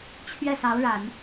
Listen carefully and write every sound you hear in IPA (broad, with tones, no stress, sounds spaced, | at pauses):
t͡ɕʰ ɥ ɛ˥˩ s ɑ˧˥ ʊ̯ ɻ a˨˩˦ n